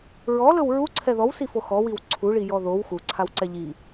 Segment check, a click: present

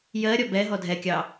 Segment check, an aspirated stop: absent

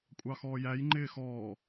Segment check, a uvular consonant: absent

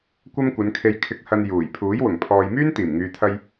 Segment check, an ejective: absent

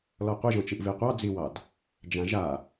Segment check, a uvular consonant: present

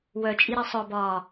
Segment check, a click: absent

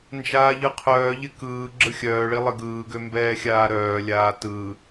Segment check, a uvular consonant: present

